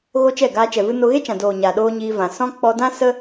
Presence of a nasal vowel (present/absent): present